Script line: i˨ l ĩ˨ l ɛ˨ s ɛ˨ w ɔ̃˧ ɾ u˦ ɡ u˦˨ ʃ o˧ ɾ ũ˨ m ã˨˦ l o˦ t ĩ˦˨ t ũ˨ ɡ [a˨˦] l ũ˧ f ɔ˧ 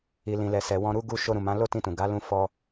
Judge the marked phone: correct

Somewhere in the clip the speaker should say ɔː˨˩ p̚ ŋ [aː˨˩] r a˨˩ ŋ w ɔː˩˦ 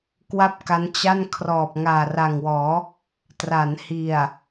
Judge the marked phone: correct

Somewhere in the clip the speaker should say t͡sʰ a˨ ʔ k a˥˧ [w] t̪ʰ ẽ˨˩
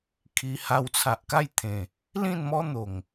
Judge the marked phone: incorrect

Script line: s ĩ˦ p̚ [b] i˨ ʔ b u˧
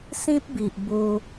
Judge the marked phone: correct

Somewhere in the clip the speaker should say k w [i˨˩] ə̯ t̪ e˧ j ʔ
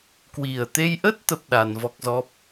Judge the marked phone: correct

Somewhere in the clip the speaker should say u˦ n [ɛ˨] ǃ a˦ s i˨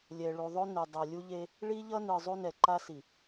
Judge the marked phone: correct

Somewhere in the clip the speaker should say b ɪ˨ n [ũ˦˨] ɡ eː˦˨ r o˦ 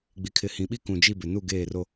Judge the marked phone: incorrect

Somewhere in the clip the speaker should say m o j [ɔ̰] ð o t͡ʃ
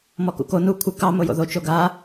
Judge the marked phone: incorrect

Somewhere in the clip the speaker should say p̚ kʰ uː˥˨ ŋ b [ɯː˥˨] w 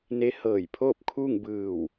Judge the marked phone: incorrect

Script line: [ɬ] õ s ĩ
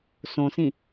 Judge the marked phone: incorrect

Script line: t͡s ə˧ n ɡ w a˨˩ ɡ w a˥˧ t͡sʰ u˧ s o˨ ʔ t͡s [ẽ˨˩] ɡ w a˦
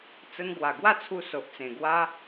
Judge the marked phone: correct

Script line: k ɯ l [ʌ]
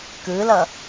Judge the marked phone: correct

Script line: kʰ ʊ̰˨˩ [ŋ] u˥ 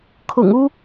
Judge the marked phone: correct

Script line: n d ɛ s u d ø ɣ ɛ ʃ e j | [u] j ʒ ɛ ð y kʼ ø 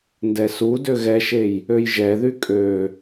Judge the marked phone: incorrect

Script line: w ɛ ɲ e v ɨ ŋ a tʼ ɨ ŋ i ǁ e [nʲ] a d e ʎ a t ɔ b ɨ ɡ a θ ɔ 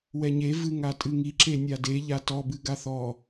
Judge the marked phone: correct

